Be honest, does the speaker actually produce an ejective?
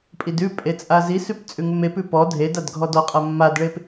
yes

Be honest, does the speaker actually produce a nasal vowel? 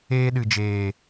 no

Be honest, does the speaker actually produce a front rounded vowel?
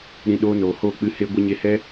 no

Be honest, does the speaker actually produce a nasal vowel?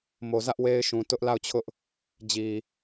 yes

